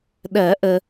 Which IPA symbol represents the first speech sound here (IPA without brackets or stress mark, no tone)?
ɗ